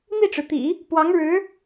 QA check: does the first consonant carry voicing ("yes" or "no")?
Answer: yes